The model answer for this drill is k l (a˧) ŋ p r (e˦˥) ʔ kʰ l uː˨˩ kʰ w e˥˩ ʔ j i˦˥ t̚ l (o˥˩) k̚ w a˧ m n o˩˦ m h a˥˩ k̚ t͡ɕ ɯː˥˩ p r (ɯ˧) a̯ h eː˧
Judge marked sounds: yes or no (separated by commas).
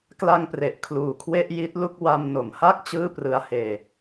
yes, no, no, yes